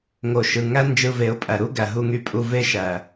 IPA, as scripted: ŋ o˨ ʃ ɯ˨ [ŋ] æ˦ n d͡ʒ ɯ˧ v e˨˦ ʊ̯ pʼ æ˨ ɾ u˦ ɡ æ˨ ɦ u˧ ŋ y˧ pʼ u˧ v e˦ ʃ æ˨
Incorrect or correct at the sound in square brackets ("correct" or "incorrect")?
correct